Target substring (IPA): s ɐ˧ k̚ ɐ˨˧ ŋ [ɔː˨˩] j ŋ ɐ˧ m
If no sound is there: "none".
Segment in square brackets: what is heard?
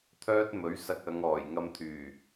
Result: ɔː˨˩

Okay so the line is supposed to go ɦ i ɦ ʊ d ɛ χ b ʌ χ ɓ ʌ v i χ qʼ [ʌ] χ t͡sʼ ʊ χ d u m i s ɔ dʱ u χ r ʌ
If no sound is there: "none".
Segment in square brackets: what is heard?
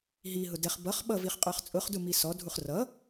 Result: ə˞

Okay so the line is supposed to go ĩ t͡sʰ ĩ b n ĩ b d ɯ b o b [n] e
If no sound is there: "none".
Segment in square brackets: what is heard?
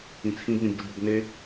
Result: n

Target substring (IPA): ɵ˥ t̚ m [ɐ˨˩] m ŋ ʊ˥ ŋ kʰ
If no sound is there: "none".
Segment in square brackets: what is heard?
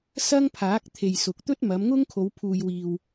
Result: ɐ˨˧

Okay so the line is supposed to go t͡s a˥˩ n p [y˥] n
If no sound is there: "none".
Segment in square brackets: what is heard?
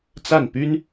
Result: y˥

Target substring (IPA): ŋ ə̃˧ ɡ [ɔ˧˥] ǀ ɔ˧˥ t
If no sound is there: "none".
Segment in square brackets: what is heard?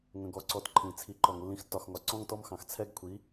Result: ɔ˧˥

